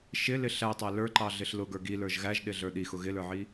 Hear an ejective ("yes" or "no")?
no